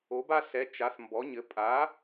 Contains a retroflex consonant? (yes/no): no